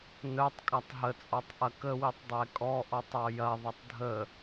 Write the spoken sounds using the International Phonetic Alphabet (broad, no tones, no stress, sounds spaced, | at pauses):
n œ tˤ kʼ a tˤ ɦ ə t͡sʼ ɔ tˤ ʔ ɐ k ə w i tˤ dˤ ɛ kʼ ɔ ʔ ɔ tˤ ɔ j ɐ ðˤ ɐ tˤ dʱ ə